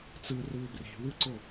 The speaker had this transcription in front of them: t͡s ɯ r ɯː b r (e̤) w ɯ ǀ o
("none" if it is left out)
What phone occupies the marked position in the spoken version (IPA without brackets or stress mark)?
e̤